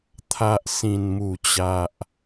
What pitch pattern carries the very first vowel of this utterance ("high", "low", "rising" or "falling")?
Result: low